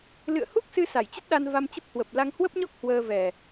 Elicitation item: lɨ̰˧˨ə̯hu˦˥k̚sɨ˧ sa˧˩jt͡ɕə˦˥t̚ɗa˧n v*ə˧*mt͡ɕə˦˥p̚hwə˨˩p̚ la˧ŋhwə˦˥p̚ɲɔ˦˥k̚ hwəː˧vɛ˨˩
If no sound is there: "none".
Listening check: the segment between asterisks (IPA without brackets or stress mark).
a˧